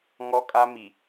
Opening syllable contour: high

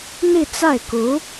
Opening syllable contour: falling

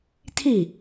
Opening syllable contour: falling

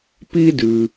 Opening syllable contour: high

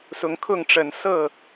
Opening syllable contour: rising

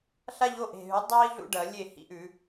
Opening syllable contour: high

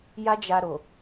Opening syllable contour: high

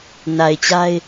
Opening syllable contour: low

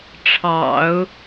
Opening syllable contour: low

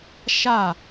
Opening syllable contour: falling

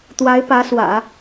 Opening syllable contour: rising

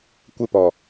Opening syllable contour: high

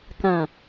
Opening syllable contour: low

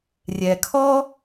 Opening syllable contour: low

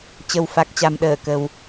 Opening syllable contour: low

